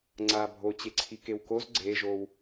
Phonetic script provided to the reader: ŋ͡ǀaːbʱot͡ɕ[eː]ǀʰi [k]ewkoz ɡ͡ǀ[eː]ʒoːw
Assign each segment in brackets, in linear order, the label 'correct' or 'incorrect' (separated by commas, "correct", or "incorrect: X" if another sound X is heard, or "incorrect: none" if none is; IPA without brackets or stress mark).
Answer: incorrect: e, correct, correct